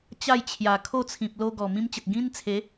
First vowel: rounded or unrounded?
unrounded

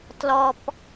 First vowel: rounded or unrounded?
rounded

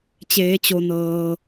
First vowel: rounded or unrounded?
unrounded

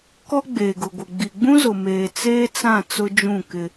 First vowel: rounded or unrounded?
rounded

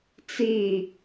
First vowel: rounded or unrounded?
unrounded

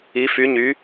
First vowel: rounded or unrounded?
unrounded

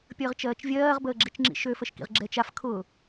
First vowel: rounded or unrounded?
unrounded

